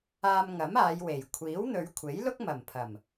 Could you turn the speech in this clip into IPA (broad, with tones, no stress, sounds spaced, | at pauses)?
aː˧ m ŋ ɐ˨˥ m aː˨˧ j w e˨˩ j kʷʰ iː˨˥ w n̪ ɵ˨˧ ɥ kʷʰ e˨˥ j l ʊ˥ k̚ m ɐ˨˩ m pʰ ɐ˨˩ m